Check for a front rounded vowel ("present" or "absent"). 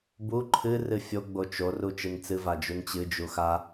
absent